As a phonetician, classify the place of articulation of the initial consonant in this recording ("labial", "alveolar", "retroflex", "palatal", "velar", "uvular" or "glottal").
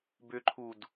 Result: labial